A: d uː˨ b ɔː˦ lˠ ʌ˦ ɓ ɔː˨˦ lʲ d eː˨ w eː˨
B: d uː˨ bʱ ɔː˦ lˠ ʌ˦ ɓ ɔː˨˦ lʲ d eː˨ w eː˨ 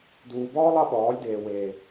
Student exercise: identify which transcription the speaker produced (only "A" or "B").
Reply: A